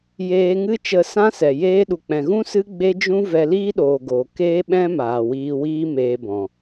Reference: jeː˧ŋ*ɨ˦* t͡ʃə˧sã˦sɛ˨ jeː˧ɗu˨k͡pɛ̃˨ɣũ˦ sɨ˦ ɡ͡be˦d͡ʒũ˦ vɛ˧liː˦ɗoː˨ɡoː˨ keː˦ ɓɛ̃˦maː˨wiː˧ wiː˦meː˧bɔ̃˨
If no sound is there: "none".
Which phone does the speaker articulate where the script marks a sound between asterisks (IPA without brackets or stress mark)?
ɨ˦